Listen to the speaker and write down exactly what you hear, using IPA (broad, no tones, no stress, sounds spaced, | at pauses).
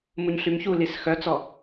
m u ɲ ɬ y m ç u l i s x œ t͡s ɔ